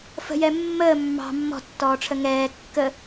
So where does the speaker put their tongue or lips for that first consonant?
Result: lips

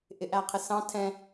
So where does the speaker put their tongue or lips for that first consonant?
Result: throat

